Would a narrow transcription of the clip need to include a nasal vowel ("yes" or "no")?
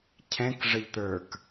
yes